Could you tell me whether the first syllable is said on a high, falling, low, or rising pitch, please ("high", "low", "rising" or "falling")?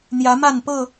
rising